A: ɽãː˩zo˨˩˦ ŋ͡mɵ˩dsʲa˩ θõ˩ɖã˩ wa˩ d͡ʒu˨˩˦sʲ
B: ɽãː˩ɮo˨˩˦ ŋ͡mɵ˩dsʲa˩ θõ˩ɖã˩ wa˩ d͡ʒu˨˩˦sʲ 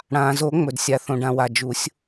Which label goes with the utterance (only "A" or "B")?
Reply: A